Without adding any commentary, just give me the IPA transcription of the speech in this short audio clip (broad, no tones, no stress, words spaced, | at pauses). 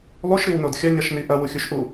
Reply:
lˠuʃɾiwnod xʲɐɲɐʃni ʔɐwuxʲuʃʔu